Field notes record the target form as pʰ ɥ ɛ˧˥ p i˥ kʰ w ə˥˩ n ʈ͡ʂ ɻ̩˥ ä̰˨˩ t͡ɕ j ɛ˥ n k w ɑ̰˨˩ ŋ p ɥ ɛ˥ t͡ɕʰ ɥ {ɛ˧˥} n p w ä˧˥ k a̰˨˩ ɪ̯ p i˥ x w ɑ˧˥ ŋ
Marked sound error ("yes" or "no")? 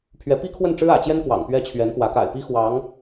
no